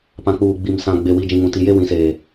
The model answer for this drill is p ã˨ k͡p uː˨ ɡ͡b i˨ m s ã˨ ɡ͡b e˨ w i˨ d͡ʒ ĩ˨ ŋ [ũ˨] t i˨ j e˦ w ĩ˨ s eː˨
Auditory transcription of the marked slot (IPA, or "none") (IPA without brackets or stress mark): ũ˨